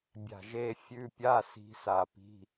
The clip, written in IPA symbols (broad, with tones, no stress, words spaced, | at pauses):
bʲa̤˧˩ʒe˧˥˧fʲʉ˧˥˧ pʲa˧˥˧si̤˨˦ sa˧˩pi̤˧˥˧